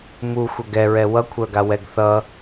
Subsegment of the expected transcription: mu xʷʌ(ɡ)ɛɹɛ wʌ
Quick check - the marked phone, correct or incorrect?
correct